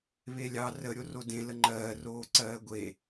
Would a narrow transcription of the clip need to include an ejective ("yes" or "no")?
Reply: no